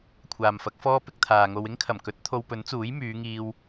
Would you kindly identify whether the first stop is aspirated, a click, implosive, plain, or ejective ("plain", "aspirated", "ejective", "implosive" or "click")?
aspirated